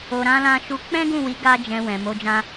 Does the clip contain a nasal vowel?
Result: yes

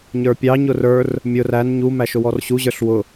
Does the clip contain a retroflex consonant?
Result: no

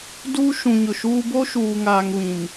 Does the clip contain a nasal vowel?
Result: yes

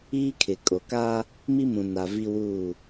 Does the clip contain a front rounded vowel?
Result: no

